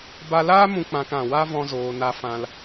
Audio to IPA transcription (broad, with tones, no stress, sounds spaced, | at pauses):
b a˧ l aː˦ m ũ˧ k͡p ã˧ k ã˨ w a˦ v ɔ̃˧ z oː˨ n a˧ f ã˧ l